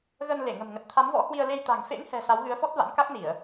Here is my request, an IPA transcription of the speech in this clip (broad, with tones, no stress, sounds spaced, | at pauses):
ɣ ə˧ n l e˧˩ ŋ ə̤˨˩ m ŋ ə˨˩ t̚ t̪ʰ a˨˦ m v ɔ̰˧˥ h w i˧ ə̯ l e˧ j t̪ a̤˨˩ ŋ f ḛ˧˥ ŋ h ɛ̤˨˩ s a˨˦ w ɣ ɨ˨˦ ə̯ f ɔ˦˥ t̚ v a̰˧˥ n k a˦˥ k̚ n i˧˩˨ ə̯